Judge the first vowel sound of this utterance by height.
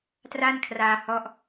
low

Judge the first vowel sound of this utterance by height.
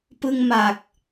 high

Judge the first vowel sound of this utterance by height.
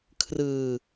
high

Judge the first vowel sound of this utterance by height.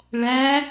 low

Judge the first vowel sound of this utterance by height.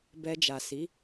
mid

